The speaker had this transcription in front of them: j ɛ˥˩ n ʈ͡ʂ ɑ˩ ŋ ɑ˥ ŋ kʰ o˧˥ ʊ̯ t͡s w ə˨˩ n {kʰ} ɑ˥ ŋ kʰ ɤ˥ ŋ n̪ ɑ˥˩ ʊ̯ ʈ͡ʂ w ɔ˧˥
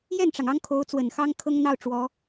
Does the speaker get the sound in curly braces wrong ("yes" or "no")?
yes